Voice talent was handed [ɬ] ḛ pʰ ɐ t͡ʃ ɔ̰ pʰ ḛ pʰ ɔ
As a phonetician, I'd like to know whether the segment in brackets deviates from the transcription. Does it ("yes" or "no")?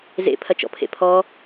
yes